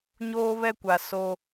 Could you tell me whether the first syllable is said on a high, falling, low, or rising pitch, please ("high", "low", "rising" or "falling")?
high